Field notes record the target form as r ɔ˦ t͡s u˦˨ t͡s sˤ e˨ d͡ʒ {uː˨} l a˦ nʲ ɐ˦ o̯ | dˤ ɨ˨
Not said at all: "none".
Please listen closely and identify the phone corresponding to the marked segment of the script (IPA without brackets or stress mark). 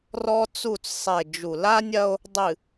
u˨